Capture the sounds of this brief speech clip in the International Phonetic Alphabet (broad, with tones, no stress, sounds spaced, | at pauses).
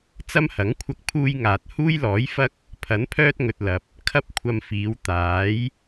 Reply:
t͡s ɐ˥ m h ɐ˨˥ ŋ kʷʰ ɐ˧ k̚ pʰ uː˧ j ŋ aː˨ t̚ h uː˥ j l ɔː˨˥ j f ɐ˥ k̚ | pʰ ɐ˨˥ n pʰ œː˥ t̚ ŋ ɵ˨ t̚ l ɐ˨ p̚ | kʰ ɐ˥ p̚ kʷʰ ɐ˧ m f iː˨˧ w t̪ aː˨˥ j